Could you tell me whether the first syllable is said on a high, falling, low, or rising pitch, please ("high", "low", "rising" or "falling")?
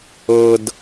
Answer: low